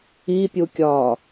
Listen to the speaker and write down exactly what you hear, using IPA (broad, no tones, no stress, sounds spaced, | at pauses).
i pʲ u kʲ ɒː